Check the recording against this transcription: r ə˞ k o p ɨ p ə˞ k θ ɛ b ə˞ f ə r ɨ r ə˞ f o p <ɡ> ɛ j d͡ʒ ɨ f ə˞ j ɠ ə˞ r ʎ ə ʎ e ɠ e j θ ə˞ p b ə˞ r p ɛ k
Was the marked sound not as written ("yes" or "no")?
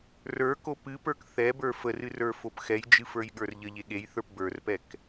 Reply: yes